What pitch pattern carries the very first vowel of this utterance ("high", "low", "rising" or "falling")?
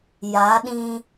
rising